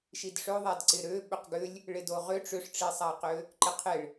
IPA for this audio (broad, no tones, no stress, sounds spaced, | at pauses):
ʃ i d ʂ ø ðˤ a d ǀ ɪ ɾ ø ɓ ʏ q ɡ ʏ lʲ | ɭ ɪ d o ʁ ʏ ʈ͡ʂ ʏ ʂ ʈ͡ʂ i sˤ a q ø | ǃ ɪ qʰ ɪ ɭ